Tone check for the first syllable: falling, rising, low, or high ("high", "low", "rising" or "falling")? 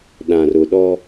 low